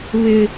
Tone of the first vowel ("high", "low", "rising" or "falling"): high